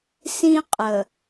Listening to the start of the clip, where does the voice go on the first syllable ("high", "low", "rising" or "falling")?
high